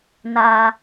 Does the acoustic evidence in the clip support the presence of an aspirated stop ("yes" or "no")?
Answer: no